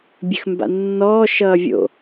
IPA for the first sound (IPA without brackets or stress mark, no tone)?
bʲ